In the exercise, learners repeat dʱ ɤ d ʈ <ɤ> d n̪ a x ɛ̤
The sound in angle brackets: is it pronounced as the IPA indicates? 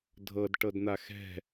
yes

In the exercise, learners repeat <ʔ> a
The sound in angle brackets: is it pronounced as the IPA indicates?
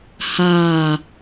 no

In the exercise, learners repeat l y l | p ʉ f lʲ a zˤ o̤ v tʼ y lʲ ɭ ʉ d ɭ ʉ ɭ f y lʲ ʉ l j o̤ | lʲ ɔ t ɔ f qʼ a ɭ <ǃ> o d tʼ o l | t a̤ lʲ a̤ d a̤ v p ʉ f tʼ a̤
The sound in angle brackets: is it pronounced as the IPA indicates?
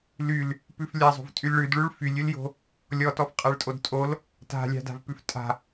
no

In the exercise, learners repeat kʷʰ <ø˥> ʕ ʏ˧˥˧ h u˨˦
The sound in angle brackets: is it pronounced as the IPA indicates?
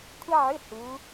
no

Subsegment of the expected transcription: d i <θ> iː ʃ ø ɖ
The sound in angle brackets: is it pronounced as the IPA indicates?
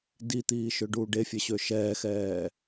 no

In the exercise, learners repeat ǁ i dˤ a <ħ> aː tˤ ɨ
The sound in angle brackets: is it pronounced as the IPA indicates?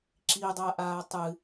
no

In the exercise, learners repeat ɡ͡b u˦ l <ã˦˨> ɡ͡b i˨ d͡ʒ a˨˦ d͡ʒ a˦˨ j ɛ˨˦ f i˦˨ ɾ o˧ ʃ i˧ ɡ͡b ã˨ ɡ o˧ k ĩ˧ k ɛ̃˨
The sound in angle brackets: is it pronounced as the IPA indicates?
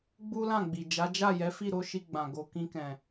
yes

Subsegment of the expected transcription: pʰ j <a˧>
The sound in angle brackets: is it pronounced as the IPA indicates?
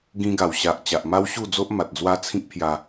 yes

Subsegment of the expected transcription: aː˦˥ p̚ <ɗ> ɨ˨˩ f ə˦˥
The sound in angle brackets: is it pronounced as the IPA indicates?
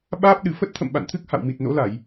yes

